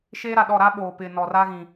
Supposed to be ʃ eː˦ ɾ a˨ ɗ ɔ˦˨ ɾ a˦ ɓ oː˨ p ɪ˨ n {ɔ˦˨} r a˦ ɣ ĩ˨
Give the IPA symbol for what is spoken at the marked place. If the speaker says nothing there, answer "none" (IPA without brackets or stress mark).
ɔ˨